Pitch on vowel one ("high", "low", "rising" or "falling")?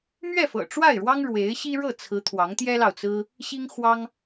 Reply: falling